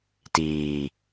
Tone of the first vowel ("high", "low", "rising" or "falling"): low